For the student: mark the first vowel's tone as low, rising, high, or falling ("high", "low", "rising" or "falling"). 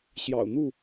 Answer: low